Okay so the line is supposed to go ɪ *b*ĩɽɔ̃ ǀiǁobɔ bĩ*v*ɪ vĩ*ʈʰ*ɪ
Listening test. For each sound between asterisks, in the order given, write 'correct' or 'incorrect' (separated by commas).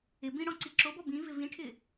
correct, correct, correct